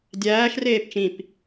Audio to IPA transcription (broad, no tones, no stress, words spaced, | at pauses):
dʲæːʃ reːpt͡ʃĩp